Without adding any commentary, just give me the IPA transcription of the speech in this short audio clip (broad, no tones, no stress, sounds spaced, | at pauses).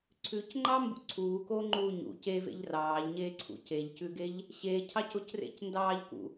ǀʰ ʉ c ŋ͡ǃ ɑ m b ṵ ǀʰ uː k oː ŋ͡ǃ uː ɲ ṵ c e v ḛ ʎ r ɑː ʎ ɲ eː ǀʰ ṵ c e ʎ c ʉ ɡ e ʎ | ɕ e cʰ ɑ c o c r ḛ c n d ɑː ʎ k ṵ